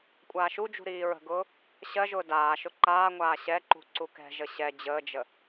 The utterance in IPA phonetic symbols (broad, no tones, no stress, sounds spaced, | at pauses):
kʷʼ aː ʃ u d͡ʒ ṳ ɾ iː ɹ ə̤ ɡ ʊː | ɕ ɜ ʒ ʊː d aː ʃ ʊ ǃ aː ŋʷ aː ɕ ɛ ǃ ṳ ǀ u k ɛ̤ ʒ ə ɕ ɛ d͡ʑ əː d͡ʒ ə